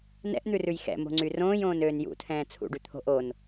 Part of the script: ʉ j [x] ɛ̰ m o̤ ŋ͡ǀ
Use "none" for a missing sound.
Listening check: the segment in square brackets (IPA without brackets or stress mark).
x